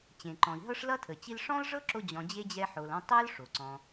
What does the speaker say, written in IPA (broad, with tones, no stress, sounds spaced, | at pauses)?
t͡ɕ ẽ˩ ǃ ɔ̃˩ i̯ ɦ ɤ˦ ʂ l ʌ˥ tʰ ə˩ t͡ɕ i˦ l ʂ ɔ̃˥ l ʐ ɤ˥ ǁ o˦ d͡ʑ ɔ̃˨ d͡ʑ e˥ d͡ʑ ɛ˦ ħ o˨ l ɔ̃˦ tˤ ɤ˥ l ʂ o˩ ǀ ɔ̃˨